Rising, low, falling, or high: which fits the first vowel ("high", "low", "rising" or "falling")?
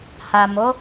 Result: low